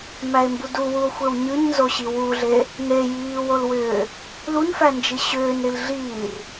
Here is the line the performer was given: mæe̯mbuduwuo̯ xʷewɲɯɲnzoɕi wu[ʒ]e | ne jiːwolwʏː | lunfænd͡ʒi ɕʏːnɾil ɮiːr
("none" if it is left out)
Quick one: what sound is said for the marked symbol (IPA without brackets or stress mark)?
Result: ɮ